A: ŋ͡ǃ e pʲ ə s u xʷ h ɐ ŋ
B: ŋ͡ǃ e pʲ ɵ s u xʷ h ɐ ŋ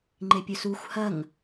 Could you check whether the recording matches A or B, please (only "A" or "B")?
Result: B